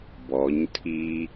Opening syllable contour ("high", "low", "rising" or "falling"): rising